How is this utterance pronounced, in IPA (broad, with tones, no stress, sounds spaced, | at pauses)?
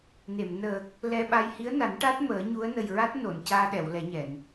n e˨˩˨ m n əː˨˩ k̚ | l ɛ˧ ɓ a˧ j h i˧˥ ə̯ n a˨˩˦ n ʈ a˦˥ t̚ m əː˨˩˦ ɲ u˧˥ ə̯ n ə˨˩ j ɹ a˦˥ t̚ n o˨˩˨ n c aː˧ ɗ ɛ˨˩˨ w l ɛ˨˩˦ ɲ ɛ˨˩˨ n